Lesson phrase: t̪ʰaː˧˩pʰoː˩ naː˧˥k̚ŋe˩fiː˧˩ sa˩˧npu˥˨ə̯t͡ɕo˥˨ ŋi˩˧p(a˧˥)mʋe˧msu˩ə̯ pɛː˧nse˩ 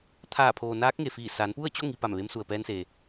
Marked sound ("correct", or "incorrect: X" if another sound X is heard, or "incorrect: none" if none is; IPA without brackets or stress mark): incorrect: a˧˩